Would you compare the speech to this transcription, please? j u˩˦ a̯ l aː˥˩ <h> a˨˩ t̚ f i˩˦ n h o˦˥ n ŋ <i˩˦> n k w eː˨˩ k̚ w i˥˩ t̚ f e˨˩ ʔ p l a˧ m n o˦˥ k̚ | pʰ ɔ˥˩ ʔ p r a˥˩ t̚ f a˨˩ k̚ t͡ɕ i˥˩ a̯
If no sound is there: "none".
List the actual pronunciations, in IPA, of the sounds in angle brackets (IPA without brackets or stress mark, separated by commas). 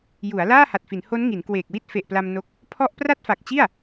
h, i˩˦